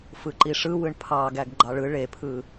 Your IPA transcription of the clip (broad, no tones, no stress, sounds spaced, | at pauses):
f ɯ ǃ i ʂ ɯ w ɯ ɳ pʰ ɑ ɡ æ ɡ ɡ͡ǃ ɑ ɭ ɯ ɭ e pʰ ɯ